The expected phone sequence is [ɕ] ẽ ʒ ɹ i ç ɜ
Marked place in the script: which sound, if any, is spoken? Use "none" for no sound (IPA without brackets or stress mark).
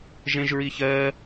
ʒ